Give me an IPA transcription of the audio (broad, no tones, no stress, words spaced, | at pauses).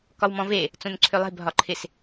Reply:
kɒwmɔ̃ve | t͡sõnǀʰølˠe̤ bʱɒǃʰɪs